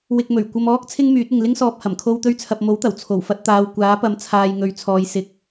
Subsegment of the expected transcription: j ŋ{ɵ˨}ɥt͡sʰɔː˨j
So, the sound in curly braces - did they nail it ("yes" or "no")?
yes